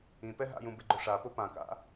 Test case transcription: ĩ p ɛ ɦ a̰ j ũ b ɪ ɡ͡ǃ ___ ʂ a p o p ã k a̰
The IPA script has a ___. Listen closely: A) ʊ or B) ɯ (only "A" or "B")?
A